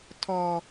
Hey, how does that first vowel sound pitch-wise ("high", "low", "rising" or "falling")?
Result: low